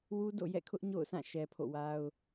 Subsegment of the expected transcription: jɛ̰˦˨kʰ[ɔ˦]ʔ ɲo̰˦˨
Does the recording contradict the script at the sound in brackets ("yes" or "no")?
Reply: yes